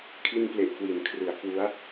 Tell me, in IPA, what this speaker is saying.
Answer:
kʰi˧nple˨˩ʔkwi˩˦nkʰrɯ˩˦a̯ kwu˦˥a̯

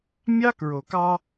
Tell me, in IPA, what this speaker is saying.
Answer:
mʲɑ˦kɹo˨kɑ˦

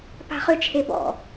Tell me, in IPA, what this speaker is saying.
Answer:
pa̤χʏ t͡ʃʰebɔ̰

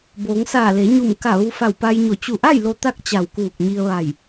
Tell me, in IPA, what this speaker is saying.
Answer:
boː˩˧ŋ saː˧˩le˩˧ɲu˧˩m ka˧˩ ʋu˧ fa˧˩wpa˧jɲo˧˩ t͡ɕu˧˩ʔa˥˨j lo˧t̪a˥˨k̚ t͡ɕa˧˩wkuː˧˩k̚ɲi˧ə̯ʋa˧˩j

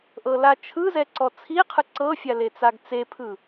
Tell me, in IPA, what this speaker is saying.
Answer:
ʔɤlat͡ʃʰɯzɛ ǀɔt͡sʰiqʰɯ ǀɤfʲa let͡saɡt͡sepʰɯ

